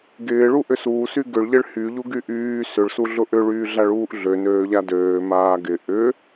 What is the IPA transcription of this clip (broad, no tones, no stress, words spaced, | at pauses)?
ɡɪːɭu ʔʏsuːsy ɡʏɭʎɪɭ hyʎuɡy ʔyː sʏɭsuɮʊ ʔʏɭyːɮaɭuːʔ ɮønøːʎa døː maːɡɪ ʔʏ